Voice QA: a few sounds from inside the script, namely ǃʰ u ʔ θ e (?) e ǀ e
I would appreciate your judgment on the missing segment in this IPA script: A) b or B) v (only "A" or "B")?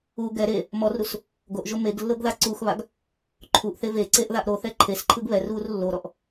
B